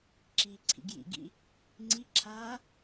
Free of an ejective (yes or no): yes